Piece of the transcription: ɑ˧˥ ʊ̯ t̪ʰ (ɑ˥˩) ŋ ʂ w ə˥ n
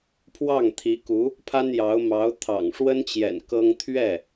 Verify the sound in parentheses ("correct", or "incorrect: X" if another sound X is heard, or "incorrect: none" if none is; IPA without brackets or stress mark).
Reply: incorrect: ɑ̰˨˩